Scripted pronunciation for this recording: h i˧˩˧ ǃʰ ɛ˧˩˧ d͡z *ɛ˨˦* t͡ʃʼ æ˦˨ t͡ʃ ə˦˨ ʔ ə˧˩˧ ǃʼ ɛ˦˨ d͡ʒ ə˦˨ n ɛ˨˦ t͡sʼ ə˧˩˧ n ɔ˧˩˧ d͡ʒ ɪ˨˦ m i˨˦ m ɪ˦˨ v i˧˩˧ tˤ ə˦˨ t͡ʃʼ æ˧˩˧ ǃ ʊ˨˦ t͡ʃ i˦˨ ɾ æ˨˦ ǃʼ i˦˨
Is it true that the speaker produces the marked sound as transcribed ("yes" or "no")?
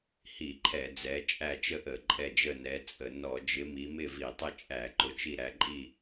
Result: yes